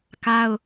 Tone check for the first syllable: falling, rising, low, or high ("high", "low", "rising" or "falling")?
high